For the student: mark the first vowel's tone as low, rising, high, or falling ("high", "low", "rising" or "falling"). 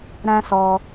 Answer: high